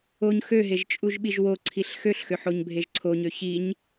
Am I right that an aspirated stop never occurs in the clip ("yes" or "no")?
no